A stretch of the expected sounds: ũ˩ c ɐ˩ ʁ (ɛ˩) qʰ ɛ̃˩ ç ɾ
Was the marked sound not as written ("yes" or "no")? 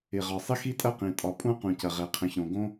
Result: no